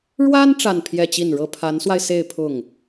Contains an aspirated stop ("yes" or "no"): yes